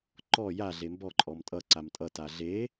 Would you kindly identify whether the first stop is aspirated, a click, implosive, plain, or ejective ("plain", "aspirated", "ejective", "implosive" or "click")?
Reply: click